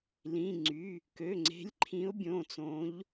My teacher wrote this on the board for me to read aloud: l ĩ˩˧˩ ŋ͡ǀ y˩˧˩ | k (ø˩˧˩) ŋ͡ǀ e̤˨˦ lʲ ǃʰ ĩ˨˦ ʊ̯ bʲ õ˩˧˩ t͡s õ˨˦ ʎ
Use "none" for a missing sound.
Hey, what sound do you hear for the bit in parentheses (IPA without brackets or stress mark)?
ø˩˧˩